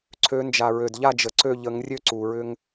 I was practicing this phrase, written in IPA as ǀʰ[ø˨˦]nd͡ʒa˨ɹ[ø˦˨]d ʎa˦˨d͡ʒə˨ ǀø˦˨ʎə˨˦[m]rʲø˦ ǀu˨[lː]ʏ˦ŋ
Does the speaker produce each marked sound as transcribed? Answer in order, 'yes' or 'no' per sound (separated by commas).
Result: yes, no, no, no